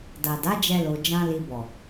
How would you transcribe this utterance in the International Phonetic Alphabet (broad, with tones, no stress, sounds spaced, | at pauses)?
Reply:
d a˨ d a˨˦ d͡ʒ ɛ˧ l o˧ d͡ʒ ã˦ l i˧ b ɔ˨